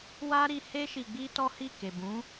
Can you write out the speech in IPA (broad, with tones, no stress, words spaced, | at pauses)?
wa˦ɾi˧he˦ ʃi˧ɡ͡bi˦tɔ˦hi˦˨ ke˨bũ˨˦